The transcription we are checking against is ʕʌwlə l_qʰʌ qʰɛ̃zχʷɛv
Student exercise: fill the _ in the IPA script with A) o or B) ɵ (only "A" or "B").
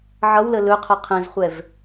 B